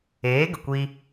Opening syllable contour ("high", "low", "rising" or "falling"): rising